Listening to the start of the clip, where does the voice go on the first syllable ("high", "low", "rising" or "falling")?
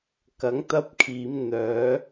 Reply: rising